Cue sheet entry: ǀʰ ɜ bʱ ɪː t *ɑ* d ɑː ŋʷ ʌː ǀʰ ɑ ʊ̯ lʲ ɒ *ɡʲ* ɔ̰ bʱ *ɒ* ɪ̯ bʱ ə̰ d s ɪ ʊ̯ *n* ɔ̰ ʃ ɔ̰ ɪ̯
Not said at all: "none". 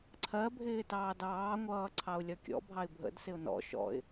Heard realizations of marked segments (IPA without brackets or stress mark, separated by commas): ɑː, kʲ, ɑ, n